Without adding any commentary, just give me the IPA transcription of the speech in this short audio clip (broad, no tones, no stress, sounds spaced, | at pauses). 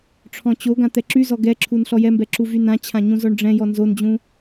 ʈ͡ʂʰ ɔ̃ t͡ɕ o ɡ ã t̪ ɛ ǁ y z ɔ ɡ ɛ ǁʰ u n ɬ ɔ j ɛ m b ɛ ǁ u v y n ã t͡ɕʰ ã ɲ ũ z ɔ ɳ ɖ͡ʐ ɛ̃ j ɔ n z o n d͡ʑ ũ